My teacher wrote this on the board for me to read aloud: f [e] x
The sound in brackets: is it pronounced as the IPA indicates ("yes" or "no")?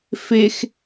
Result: yes